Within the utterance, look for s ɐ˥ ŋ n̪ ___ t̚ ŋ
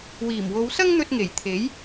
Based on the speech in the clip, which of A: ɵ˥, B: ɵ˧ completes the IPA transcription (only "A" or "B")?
B